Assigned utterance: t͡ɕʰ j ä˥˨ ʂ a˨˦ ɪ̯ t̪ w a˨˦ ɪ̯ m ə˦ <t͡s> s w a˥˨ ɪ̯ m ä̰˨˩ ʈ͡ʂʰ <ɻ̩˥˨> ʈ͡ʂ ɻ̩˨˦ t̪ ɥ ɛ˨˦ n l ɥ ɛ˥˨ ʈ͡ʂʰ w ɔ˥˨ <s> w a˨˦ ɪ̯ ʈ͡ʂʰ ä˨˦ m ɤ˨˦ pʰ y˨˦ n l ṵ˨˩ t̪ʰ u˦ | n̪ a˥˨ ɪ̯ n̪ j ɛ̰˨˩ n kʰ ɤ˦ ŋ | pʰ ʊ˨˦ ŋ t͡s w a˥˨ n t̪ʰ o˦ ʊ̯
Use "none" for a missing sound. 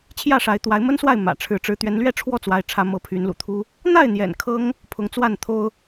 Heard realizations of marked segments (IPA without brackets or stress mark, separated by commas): n, ɻ̩˨˦, t͡s